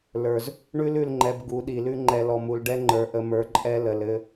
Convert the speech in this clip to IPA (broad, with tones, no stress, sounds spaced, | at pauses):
l ə˞˨ z | ɳ ʉ˦ l ʉ˨ l ŋ͡ǃ ɛ˨ b ɡ u˨˦ ɗ i˨ l ʉ˦ ŋ͡ǃ ɛ˨ l ɔ˨ m u˨ l ɖ ɛ˦ ŋ͡ǃ ə˞˨ ʔ ə˨ m ə˞˨ ǃʼ ɛ˦ l ə˨ l ɘ˦